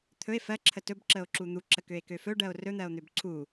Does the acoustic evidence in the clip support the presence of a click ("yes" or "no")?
yes